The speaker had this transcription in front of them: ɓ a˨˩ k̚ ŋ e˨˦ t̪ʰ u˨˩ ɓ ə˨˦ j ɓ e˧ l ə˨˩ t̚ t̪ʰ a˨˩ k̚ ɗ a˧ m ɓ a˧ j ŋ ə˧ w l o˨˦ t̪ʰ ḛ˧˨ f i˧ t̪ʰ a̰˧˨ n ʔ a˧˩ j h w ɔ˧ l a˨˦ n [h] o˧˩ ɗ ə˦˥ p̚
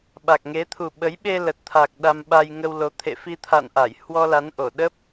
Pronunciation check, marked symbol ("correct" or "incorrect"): incorrect